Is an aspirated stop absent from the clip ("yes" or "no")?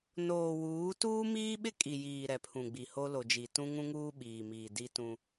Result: no